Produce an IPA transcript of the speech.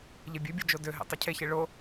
ʎebʲøbʲɯ d͡ʒodøɦḛ tˤycʰeçe ɭo

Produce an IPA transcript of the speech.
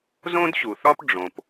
zõ˥dɕu˩θɒ˥p ɖ͡ʐõ˩p

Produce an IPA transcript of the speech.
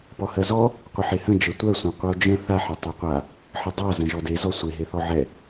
pɔhɜzɔ | qʷəħehə̃ d͡ʒətʷɜ sʷẽqʷɯo̯d͡ʒə̃ θaħ etˤɛqʷa | ħədˤa zə̃ʒɔde zɔsʷe ɦeθɔʕɛ

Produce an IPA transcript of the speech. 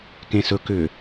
kẽsɵ kʏ

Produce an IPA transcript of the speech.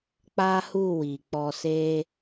k͡pa˦hu˦˨wi˨ k͡pɔ˧ se˧

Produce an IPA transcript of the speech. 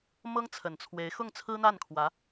mɤ˥ŋt͡sʰə˨˩nt͡sʰwe˧˥ɪ̯ xʊ˥˩ŋt͡sʰɹ̩˥n̪a˥˩nkʰwä˧˥

